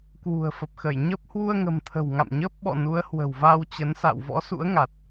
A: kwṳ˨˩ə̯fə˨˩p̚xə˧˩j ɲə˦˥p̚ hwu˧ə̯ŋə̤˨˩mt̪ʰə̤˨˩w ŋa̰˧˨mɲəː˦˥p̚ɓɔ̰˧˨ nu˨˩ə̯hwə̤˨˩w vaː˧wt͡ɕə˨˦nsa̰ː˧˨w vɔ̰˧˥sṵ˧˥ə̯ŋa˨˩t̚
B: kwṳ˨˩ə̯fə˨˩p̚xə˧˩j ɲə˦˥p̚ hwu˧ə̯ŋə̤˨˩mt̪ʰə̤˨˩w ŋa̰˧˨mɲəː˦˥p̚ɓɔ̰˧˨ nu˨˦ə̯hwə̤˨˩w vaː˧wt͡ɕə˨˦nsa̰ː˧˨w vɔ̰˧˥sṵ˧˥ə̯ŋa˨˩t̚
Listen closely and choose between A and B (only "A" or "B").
B